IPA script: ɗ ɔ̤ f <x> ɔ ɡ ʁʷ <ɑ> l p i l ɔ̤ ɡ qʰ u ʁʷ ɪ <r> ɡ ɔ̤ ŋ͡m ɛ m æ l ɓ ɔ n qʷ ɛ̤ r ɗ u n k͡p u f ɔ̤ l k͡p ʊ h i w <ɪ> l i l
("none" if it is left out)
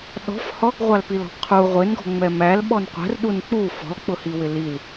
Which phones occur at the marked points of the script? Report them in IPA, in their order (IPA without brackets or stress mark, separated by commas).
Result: h, ɑ, n, ɪ